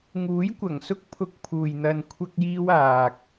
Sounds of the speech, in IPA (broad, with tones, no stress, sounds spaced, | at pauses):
ŋ uː˨˥ j kʷ ɐ˨˩ ŋ s ʊ˥ k̚ pʰ ʊ˧ k̚ pʰ uː˨ j n̪ ɐ˧ n kʷʰ ɐ˥ k̚ j iː˥ w aː˨ k̚